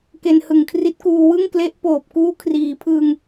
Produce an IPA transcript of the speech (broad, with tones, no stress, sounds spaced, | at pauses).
k e˧ n h ɯ˨˩ ŋ kʰ r i˦˥ t̚ k uː˧ w ɯ˥˩ ŋ k l e˦˥ ʔ p oː˨˩ p̚ k uː˦˥ kʰ r iː˩˦ pʰ ɯ˧ ŋ